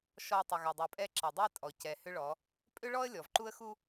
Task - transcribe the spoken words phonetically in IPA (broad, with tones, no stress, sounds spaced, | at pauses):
ʃ ɔ˨ tˤ ʏ˨ ɣ a˨ dˤ u˨ pʼ ɛ˦ ǁ a˨ dˤ ɛ˦ tʼ ɔ˨ c ɛ˨ h ʏ˦ ɭ ɔ˨˦ | pʼ ʏ˦ ɭ ɔ˦ ə̯ lʲ ɔ˨ v ǃ u˦ ə̯ x u˦